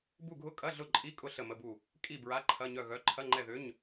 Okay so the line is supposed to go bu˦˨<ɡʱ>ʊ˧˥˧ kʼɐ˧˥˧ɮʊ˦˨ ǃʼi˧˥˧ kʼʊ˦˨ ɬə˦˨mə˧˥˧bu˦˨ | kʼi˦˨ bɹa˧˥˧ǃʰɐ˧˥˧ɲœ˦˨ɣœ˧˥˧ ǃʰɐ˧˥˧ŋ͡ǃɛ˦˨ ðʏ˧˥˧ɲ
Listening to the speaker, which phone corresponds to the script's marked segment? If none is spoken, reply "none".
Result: ɡʱ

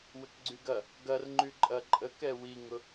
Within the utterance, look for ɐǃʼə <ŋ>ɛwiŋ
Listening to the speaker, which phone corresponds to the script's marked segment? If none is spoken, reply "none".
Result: k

